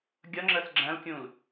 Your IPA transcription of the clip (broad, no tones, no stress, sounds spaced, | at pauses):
ɡʲ ʌ ŋ͡ǁ ə s ɡ͡ǁ æ̃ l kʲ ũ l